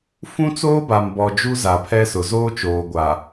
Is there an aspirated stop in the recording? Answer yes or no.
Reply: yes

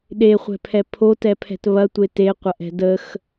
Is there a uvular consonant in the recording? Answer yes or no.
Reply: yes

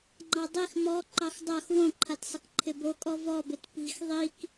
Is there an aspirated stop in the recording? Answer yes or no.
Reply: yes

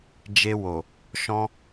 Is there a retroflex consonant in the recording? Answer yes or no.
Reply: no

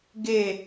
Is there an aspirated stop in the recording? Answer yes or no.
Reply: no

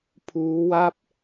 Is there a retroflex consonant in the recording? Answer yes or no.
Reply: no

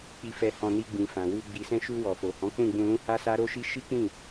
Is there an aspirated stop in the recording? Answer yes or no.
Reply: no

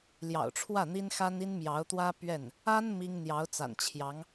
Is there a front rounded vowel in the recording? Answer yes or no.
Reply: no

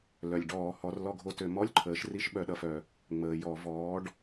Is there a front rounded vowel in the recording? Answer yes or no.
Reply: yes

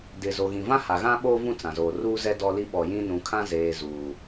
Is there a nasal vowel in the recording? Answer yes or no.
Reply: yes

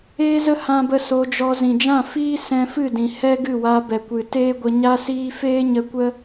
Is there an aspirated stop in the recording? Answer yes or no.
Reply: no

